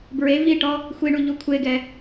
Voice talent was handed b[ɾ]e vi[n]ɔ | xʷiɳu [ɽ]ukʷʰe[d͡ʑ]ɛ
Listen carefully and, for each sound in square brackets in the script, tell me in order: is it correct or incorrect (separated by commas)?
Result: incorrect, incorrect, incorrect, incorrect